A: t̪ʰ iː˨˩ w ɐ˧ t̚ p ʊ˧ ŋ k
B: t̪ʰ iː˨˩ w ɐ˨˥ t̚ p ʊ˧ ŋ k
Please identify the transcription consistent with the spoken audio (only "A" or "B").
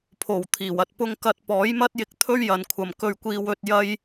A